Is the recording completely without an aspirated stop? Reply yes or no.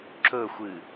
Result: yes